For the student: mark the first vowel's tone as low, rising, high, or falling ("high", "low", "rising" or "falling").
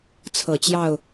low